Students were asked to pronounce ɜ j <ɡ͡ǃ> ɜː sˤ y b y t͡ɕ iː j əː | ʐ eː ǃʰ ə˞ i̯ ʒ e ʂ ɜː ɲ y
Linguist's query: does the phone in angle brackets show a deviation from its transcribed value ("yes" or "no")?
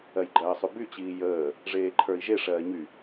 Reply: no